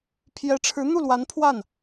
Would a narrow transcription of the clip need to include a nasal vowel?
no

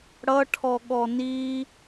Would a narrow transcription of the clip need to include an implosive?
yes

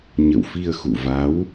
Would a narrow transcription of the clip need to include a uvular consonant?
no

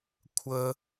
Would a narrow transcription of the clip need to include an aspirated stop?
yes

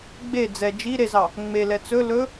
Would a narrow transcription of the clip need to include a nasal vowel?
no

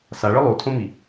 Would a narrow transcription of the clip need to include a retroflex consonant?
yes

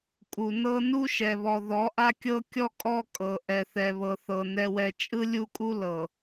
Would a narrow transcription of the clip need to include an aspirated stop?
no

